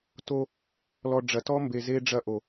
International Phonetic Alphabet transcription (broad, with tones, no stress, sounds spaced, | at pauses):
t o˦ | l ɔ˨ ɖ͡ʐ ɐ˨ t ɔ˦ m b e˨ z e˦ ɖ͡ʐ ɐ˦˨ ʔ o˨